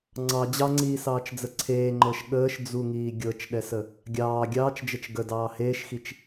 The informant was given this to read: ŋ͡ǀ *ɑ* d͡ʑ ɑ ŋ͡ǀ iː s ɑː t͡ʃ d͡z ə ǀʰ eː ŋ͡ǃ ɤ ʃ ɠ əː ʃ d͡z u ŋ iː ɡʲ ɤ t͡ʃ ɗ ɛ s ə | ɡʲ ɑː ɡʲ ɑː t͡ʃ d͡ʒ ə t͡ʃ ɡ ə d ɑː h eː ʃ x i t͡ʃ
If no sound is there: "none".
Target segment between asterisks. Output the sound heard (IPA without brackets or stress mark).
ɑ